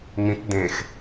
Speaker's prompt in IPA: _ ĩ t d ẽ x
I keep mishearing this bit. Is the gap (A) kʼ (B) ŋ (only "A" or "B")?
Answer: B